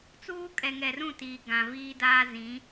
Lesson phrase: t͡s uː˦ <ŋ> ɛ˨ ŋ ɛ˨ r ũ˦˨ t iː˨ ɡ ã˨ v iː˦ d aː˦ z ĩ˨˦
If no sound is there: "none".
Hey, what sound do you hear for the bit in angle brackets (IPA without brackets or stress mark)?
kʼ